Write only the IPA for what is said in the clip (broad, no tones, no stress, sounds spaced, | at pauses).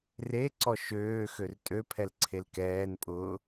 r e ǀ ɔ ʃ øː x ø r tʼ ø pʰ ɛ l ǀʰ e l k ɛː n pʼ ʊː